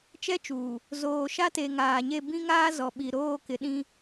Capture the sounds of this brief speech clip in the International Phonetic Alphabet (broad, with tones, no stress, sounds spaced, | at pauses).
t͡ʃ ɛ˦ t͡ʃ uː˨ | z oː˨ ʃ a˦ t e˨ ŋ aː˨ ɲ e˦˨ b ĩ˦ ŋ aː˦ z ɔ˨ ɓ i˨ ɾ oː˦˨ k ɪ˨ ɗ ĩ˦